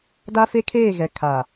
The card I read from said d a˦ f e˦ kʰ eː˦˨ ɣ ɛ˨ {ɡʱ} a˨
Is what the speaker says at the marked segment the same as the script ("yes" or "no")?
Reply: no